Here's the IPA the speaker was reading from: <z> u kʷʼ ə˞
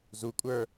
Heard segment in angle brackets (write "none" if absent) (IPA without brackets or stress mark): z